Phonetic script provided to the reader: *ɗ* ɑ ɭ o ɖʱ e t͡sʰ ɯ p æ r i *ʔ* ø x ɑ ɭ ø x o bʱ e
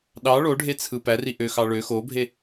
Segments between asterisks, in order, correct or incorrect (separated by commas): correct, correct